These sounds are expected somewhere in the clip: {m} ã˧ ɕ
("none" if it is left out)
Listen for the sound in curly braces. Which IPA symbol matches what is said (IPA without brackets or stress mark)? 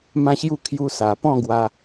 m